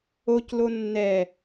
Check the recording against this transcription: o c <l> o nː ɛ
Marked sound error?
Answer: no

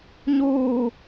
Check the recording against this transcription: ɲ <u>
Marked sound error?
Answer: yes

